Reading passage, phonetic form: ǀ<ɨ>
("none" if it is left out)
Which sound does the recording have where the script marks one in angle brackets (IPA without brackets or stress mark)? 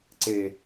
e